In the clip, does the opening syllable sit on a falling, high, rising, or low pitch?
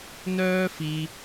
high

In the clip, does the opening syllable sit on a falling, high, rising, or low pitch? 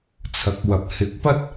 rising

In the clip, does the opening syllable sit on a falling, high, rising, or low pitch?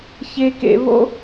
high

